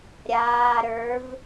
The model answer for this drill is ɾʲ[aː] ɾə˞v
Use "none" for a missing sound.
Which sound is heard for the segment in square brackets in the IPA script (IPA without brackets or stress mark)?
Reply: aː